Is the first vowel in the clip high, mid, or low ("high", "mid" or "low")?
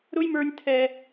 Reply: high